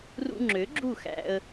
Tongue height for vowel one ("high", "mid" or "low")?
high